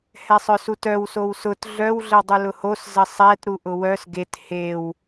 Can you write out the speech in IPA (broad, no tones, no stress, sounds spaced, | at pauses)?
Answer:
h ɛ sˤ œ s u t œ w s o w s ʊ t ɮ œ w ɮ ə w dˤ u l ʊ h o s z ə sˤ ɛ t ɾ u ʔ ʊ w œ s ɡ e t h e w